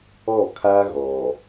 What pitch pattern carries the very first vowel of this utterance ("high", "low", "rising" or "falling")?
falling